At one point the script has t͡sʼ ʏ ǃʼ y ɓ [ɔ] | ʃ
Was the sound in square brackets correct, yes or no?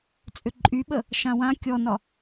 no